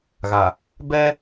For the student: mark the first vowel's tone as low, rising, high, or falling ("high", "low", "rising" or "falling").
low